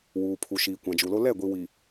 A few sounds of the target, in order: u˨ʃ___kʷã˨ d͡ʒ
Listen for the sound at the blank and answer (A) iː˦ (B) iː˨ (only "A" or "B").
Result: B